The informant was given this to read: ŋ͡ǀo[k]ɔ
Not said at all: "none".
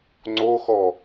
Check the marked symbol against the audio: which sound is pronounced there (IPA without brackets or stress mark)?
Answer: x